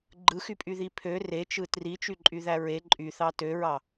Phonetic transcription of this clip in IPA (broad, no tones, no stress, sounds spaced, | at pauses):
ɡ͡ǃ ɯ x y pʼ y ð i pʰ ø r e t͡ʃ ɯ t r i t͡ʃ y ǃʼ y ð æ ɹ e ǃʼ y θ ɑ t ø ɹ ɑ